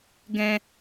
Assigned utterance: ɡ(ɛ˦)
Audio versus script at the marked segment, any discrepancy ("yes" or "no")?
yes